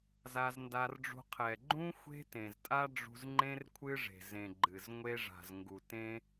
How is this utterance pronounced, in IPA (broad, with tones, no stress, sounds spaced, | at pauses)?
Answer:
z a˧ z n d a˧ r ɖ͡ʐ ṳ˧ qʰ ɛ˨ ɡ͡ǃ ũ˦ xʷ e̤˦ t ẽ˨ z tʼ a˦ ɖ͡ʐ ṳ˧ z ŋ͡ǃ ẽ˦ r kʷʰ ɨ˦ ʐ e̤˨ z ẽ˨ ɡ͡ǃ ɨ˨ z ŋʷ e˦ ʐ a̤˨ z ŋ ɡ u˨ t ẽ˦